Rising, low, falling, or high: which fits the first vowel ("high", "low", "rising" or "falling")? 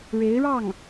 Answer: rising